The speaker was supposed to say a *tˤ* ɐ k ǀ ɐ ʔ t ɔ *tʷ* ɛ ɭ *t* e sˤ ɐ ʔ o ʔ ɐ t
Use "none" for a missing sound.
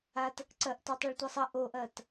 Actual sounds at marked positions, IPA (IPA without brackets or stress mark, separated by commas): t, tˤ, tʷ